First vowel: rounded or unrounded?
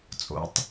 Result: rounded